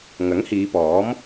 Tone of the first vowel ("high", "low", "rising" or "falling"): rising